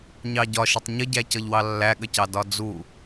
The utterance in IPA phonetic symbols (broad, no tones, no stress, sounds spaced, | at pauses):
ɲ ɑ ɟ ɒ ʃ ɪ tˤ ɲ ə ɟ æ c ʌ ʎ w ɑ lː æ ɠ ə c ɑ d ɒ d͡z u